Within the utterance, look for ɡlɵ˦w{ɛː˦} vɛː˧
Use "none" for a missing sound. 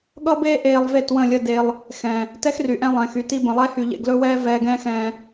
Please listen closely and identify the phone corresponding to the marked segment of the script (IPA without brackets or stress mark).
ɛː˦